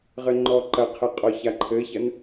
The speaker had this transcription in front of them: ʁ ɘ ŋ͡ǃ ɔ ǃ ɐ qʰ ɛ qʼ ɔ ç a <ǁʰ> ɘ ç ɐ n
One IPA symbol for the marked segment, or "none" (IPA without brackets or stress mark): ǃʰ